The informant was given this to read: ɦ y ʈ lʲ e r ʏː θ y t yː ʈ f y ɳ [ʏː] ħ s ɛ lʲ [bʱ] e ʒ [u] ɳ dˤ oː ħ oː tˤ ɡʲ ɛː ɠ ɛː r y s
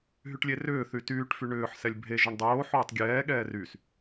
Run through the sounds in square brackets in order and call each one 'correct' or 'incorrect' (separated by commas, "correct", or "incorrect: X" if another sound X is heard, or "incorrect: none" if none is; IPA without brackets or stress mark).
correct, correct, incorrect: ʏ